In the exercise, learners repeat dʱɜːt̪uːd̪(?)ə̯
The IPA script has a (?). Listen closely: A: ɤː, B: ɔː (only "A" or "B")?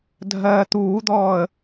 B